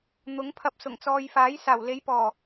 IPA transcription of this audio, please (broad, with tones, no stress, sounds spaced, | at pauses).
n̪ ʊ˨˥ ŋ pʰ ɐ˧ p̚ s ʊ˨˩ ŋ t͡s ɔː˨ j f aː˨˥ j s aː˨˩ w l e˨˥ j p ɔː˨˩